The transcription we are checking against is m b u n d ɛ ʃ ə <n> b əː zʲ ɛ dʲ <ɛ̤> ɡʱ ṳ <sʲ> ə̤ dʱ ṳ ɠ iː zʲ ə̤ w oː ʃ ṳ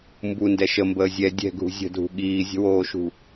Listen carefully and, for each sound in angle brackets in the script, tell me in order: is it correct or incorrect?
incorrect, correct, incorrect

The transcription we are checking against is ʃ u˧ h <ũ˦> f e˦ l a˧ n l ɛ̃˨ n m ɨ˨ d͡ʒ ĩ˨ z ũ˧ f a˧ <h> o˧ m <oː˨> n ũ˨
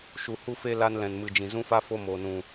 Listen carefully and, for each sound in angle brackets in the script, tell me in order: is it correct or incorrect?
incorrect, incorrect, correct

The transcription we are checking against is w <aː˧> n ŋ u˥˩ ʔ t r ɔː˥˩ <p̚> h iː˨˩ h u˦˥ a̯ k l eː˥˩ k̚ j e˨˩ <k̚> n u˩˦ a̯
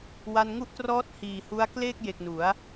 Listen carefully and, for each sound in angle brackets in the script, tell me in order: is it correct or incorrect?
incorrect, incorrect, correct

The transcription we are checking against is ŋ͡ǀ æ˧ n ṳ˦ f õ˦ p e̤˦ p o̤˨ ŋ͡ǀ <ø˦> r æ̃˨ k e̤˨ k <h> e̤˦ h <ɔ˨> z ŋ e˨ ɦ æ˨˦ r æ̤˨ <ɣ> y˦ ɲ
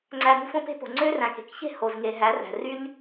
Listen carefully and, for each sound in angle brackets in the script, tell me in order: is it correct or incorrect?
correct, incorrect, incorrect, incorrect

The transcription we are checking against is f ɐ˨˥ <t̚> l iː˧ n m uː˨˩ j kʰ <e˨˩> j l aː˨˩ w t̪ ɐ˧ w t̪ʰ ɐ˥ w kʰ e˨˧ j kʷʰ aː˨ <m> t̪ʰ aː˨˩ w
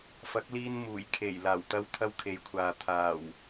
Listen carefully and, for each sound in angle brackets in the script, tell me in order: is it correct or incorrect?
incorrect, correct, incorrect

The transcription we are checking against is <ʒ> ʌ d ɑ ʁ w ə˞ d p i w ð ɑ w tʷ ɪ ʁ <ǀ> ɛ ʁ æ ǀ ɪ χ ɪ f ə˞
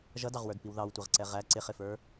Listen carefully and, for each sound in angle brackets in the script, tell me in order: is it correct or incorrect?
correct, correct

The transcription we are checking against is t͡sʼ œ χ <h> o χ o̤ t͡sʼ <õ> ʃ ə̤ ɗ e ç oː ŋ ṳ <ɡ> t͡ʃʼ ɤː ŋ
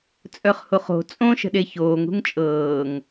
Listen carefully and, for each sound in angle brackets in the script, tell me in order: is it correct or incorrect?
correct, correct, incorrect

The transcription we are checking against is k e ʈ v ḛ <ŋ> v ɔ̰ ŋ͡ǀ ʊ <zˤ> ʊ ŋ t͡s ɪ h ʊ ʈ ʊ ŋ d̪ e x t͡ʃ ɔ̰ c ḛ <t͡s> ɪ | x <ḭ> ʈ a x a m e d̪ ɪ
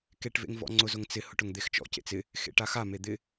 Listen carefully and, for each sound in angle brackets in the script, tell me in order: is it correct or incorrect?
correct, incorrect, correct, incorrect

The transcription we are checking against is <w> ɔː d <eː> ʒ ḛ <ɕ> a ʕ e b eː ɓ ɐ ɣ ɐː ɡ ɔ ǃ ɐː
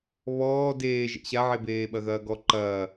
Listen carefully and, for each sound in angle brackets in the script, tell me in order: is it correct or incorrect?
incorrect, correct, correct

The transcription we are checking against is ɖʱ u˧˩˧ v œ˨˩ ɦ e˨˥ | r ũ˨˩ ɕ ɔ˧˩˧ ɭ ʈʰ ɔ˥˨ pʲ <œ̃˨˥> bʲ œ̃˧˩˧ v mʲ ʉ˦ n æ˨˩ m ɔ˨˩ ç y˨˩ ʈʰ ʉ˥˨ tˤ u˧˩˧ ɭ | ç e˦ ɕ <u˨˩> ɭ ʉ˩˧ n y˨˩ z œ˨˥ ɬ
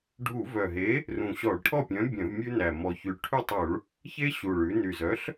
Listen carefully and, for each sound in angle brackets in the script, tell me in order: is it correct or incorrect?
correct, correct

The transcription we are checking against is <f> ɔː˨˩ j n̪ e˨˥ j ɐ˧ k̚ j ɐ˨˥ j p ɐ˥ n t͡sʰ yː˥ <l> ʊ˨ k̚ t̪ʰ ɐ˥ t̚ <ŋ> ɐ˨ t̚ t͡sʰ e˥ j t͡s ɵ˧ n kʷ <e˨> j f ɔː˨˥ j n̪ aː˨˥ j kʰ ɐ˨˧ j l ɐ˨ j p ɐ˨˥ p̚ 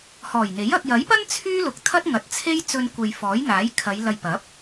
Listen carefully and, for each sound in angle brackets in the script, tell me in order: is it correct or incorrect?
incorrect, correct, correct, correct

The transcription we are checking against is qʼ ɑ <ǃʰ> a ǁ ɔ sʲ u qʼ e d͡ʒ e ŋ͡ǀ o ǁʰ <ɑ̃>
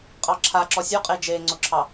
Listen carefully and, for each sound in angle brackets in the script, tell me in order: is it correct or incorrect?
incorrect, incorrect

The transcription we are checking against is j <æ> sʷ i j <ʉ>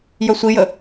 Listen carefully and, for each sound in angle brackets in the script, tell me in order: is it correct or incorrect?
incorrect, incorrect

